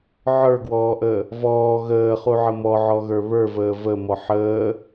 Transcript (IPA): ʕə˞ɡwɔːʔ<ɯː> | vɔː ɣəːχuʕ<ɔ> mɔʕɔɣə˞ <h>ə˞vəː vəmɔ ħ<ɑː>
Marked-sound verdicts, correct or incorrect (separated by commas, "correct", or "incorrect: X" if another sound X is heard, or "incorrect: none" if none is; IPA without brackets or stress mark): incorrect: əː, incorrect: ə, incorrect: β, incorrect: əː